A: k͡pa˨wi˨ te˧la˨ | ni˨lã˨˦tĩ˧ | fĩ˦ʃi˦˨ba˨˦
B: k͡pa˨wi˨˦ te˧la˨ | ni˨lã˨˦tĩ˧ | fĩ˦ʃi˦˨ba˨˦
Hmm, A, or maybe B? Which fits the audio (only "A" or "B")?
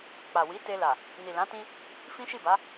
B